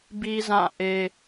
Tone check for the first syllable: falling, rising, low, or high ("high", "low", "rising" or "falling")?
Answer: high